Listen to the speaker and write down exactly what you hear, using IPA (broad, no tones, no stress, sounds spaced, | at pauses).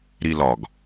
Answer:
ɾ i l ɒ ɡ